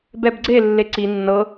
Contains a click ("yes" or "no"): yes